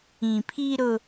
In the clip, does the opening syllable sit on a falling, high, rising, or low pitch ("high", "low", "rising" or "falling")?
low